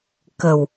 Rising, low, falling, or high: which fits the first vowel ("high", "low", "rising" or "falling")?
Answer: low